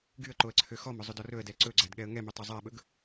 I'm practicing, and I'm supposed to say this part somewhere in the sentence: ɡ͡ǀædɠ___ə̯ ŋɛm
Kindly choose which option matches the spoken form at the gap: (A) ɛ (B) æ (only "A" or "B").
A